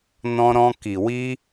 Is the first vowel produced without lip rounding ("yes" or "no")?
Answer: no